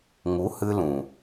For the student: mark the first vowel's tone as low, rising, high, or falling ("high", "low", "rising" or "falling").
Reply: rising